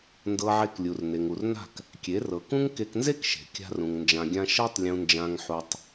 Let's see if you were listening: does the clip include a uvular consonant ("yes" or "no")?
no